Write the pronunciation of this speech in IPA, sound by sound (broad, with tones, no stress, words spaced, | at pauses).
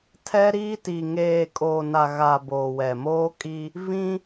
tʰɛ˦ɾiː˦ti˨ ŋeː˨kʼoː˨na˨ ɣa˨ boː˨wɛ˨moː˦kʼi˦ | vĩ˦